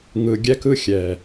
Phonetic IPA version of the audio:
ŋ ɯ˨ ɡʲ ɛ˧ k ɯ˧ xʲ ɛ˨

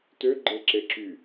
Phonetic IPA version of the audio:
t ø ɡ͡ǃ e ǁ e ǁ y

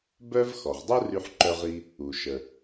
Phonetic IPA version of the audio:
b œ˥ v x ɔ˩ ʁ dˤ u˥ r y˧ ħ ǃ œ˧ ʁ i˧ | u˩ ʃ ə˩

